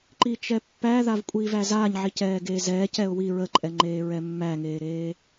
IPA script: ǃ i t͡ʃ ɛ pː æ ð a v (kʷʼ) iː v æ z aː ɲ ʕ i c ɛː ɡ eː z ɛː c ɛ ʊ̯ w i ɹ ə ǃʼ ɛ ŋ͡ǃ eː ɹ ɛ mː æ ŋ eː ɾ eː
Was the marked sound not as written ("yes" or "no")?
no